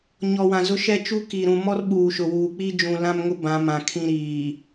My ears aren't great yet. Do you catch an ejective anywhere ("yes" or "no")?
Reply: no